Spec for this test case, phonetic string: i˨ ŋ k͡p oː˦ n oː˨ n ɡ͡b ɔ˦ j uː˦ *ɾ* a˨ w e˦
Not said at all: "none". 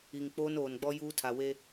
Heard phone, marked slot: tʰ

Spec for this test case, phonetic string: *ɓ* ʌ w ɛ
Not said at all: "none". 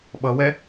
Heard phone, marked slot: ɓ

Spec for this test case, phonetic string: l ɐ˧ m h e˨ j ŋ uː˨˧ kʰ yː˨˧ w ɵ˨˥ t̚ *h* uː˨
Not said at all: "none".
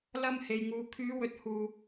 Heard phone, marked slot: h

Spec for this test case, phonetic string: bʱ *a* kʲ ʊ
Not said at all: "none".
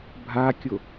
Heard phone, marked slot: a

